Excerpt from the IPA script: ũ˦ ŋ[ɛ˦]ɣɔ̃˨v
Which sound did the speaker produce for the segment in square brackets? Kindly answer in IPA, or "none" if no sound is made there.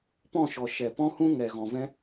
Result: ɛ˨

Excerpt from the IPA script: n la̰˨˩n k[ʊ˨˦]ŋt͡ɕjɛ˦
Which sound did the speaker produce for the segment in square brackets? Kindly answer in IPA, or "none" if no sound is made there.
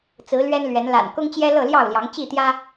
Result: ʊ˦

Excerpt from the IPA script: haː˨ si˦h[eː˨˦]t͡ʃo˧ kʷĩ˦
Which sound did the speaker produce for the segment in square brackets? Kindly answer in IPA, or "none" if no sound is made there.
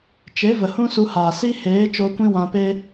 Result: eː˨˦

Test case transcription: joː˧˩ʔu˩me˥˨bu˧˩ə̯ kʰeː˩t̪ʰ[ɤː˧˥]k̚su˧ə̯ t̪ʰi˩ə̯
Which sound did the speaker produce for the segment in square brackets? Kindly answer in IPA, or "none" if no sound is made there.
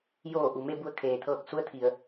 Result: ɤː˧˩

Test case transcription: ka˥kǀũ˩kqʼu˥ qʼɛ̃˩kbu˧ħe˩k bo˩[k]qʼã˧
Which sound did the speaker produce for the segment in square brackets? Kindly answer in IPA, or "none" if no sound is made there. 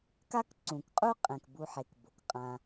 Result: k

